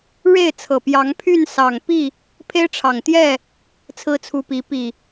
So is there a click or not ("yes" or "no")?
no